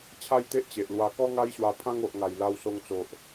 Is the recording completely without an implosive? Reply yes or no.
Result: yes